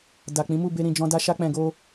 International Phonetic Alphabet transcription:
d a˨ k͡p ĩ˨˦ m u˦˨ b e˧ ɾ ĩ˨ d͡ʒ ɔ̃˧ d a˧ ʃ a˧ k͡p ɛ̃˨ ɡ o˧

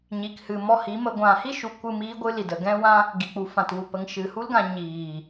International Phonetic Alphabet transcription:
ɲ i˨ k h ɨ˨ m ɔ˧ h i˨˦ m ə˧ ɡʷ ã˨ h i˦ ʃ u˨ kʷ ɨ˦˨ m iː˦ ɡʷ ɨ˦ l i˨ d ə˧ ɡ ɛ̃˦ w ã˦ | ɡ i˨ k͡p u˨ f ã˨ t w u˨ p ə˨ ŋ ʃ ɨ˨ h u˦ l ɡ ã˧ ɲ iː˨

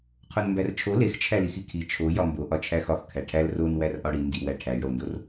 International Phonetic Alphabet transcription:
qʰ o n m b æ r t͡ʃʰ o l e x t͡ʃʰ æ l i x i kʰ i t͡ʃʰ o j ɒ m b o ʔ ɒ t͡ʃʰ æ x ɒ x kʰ æ ʈʰ æ l r o n w æ r ʔ ɒ ɽ i n d i w æ ʈʰ æ j ɽ o n d o r

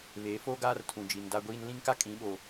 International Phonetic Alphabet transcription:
β eː˨˦ f oː˦ ɡ aː˦ r tʰ ũ˨ d͡ʒ i˨ n d a˦ ɡʷ iː˦ n l ĩ˦ ŋ k a˦ kʼ ĩ˨˦ ɓ o˨

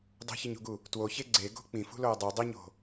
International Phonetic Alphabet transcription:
dˤ ṳ ç i ɲ ṳ ɡ u | t w o ç e ɡ͡ǀ e ɡ o̤ k͡p ĩ f ṳ l o ə̯ dˤ e dˤ i ɲ o̤

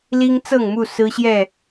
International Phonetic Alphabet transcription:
l i˦ ŋ t͡s ɤ˥˨ ŋ m u˥˨ s ɹ̩˦ ɕ j ɛ˥˨

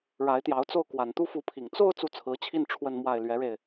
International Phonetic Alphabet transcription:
ɻ a˧˥ ɪ̯ t̪ j ɑ˧˥ ʊ̯ t͡s o˥˩ ʊ̯ k w a˨˩ n t̪ u˥˩ f u˧˥ pʰ i˨˩ ŋ t͡s o˥˧ ʊ̯ t͡s u˥˩ t͡sʰ ɹ̩˧˥ t͡ɕʰ i˥˧ n ʈ͡ʂʰ w ə˥˧ n m w a˥˩ ɪ̯ l ɥ ɛ˧˥ ɻ e˧ ɪ̯

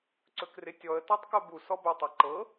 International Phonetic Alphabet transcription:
ǀ ɵ k r ɪ tʲ ɔ ə̯ t ɔ tˤ k o b u s ɔ b ɵ tˤ ɐ ǃ ɤ

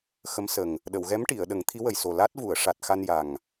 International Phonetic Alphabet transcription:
x ə˧˥ m s ə˨˩ ŋ | ɗ ə˨˩˨ w ɣ ɛ˧˥ m ʈ i˨˩˨ ə̯ ɗ ə˨˩˦ ŋ t̪ʰ i˧˥ w ə˨˩ j s o˨˩ l a˦˥ t̚ v u˨˩˨ ə̯ ʂ a˨˩ t̚ x a˧ n j a˨˩ ŋ

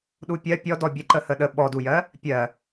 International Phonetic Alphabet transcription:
ɗ u pʲ ɜ pʲ ɔ d ɔ bʲ ə ǃ ə h ə ɗ ə ɓ ɔ d u j ɜ | pʲ ɜ

